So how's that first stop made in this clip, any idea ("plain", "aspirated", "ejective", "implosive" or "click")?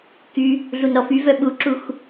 plain